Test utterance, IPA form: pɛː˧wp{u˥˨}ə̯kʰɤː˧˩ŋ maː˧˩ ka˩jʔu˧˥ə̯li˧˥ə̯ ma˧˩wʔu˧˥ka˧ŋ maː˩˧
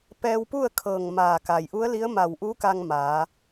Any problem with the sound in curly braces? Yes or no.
no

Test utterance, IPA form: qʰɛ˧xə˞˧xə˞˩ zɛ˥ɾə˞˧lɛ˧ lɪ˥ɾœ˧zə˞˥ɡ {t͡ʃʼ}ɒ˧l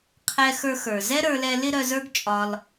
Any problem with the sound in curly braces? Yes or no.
no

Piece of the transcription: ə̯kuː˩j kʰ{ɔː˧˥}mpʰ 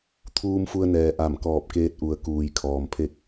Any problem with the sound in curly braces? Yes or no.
yes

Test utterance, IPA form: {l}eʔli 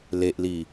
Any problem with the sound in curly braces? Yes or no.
no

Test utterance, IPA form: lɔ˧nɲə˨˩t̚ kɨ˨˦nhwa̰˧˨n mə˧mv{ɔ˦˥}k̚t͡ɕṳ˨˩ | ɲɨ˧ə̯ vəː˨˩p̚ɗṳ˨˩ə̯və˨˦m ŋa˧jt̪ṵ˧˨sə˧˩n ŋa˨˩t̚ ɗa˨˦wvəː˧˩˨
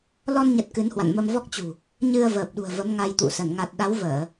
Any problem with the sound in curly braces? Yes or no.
no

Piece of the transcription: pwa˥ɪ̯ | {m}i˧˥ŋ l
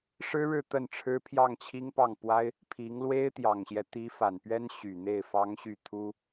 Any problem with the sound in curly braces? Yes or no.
yes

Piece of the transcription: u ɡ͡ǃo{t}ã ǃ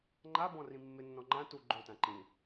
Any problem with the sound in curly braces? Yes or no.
no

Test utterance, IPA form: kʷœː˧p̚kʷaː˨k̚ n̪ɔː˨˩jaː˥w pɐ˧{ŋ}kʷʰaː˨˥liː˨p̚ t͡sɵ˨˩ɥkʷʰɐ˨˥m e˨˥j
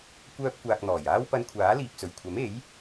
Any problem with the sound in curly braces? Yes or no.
yes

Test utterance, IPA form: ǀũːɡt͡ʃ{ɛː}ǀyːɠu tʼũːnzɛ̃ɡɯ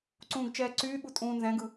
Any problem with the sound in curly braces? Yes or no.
no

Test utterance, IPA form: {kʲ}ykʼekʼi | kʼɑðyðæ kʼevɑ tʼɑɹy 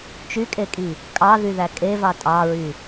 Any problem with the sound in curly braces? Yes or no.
yes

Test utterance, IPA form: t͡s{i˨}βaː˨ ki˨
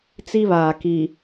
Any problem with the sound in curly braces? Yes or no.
yes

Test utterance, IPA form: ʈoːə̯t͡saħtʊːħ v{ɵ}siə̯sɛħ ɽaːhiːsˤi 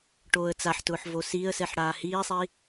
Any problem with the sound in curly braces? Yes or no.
yes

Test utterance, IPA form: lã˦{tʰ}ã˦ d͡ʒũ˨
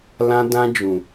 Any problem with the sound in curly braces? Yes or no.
yes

